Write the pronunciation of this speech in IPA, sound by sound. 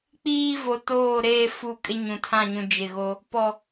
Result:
k͡p iː˦ v o˨ t oː˦˨ ɾ eː˦ f u˦˨ kʼ ɪ˦ ɲ ũ˨ tʰ ã˦˨ ɲ ũ˨ d͡ʒ ɪ˦˨ ɣ o˦ | p ɔ˨

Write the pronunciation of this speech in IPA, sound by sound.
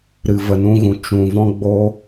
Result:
ɾ ɨ˨ v ə˨ n ũ˧ ɣ ũ˨ t͡ʃ ũ˨ v ɔ̃˦ ɡ͡b o˦

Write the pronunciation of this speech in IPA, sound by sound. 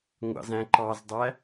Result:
ŋʷ ɑ̰ z æ̃ ǃ ɑ z dˤ æ

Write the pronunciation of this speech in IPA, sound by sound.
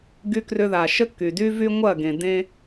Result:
ɡ y˧ k r ʏ˧ ð a˨ ʃ ə˦ kː y˨ d y˦ v y˦ ŋʷ ɐ˦˨ ɡ ẽ˨ d ẽ˦

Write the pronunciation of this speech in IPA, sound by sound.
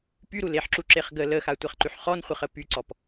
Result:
p y ɾ u l e ħ ǁ u ǁ e χ ɡ ə l ə x a tʷ ɛ χ ǃ y ħ χ ɔ n χʷ ə χ ə p y ǀ ɔ p

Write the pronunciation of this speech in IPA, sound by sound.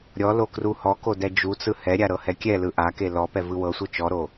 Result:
ɾʲ ɔ l o k r u h ɔ k o d ɛ d͡ʒ u t͡s ɯ h ɛ ɾʲ a ɾ ɤ h ɛ kʲ ɛ l ɯ ʔ a k e l ɔ p ɛ v ɯ w ɤ sʷ ɯ t͡ʃ ɔ ɾ o

